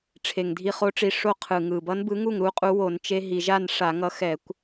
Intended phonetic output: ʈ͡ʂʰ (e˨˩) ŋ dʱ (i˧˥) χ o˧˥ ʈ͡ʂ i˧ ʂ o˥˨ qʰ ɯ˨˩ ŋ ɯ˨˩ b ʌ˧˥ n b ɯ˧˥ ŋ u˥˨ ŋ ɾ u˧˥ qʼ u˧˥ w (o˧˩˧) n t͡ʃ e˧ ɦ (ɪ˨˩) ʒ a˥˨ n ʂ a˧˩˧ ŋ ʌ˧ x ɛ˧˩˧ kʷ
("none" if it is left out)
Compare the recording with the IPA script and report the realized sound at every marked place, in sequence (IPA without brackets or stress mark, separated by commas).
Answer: e˨˩, i˧, o˧˩˧, i˨˩